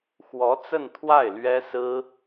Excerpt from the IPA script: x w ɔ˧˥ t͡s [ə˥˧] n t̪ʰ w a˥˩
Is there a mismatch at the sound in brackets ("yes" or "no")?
no